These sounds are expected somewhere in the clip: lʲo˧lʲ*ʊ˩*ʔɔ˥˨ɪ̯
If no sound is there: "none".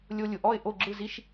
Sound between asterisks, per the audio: ʊ˩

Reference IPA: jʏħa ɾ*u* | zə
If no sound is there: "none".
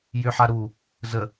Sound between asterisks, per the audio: u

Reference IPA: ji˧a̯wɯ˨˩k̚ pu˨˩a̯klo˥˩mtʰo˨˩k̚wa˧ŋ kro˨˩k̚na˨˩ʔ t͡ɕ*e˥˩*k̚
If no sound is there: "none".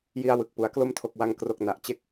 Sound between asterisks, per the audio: e˦˥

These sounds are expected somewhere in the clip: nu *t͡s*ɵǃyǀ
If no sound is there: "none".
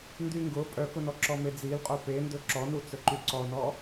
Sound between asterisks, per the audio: t͡s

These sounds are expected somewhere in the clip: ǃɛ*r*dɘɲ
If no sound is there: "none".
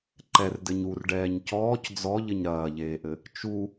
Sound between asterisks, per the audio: r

